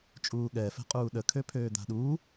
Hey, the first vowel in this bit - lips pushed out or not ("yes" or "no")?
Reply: yes